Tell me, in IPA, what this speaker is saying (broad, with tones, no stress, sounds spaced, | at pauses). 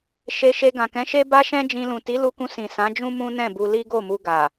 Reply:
ʃ e˧ ʃ e˧ ɡ ã˨ k ɛ̃˨˦ ʃ e˦ b a˦ ʃ ɛ̃˦ d͡ʒ ĩ˧ l ũ˨ t i˨˦ l u˧ k ũ˧ s ĩ˨ s ã˨˦ d͡ʒ ũ˦ m ũ˦ n ɛ̃˦˨ b u˧ l i˦ ɡ o˦˨ m u˧ ɡ a˨